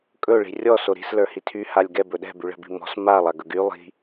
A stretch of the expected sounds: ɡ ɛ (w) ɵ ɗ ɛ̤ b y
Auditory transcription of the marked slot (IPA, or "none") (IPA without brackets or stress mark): b